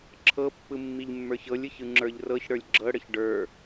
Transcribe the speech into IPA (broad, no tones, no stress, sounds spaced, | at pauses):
ǁʰ ɤ pː ɯ mː i ʎ mː ə˞ ç ɤ lʲ ɯ ç ɯ ŋ͡ǁ ə˞ ʎ r ɤ ç ɽ ə˞ lʲ ɡ͡ǁ ɤ ɽ ə ç ɖ ə˞